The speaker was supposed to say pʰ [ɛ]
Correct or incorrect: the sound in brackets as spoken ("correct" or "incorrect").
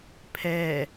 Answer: correct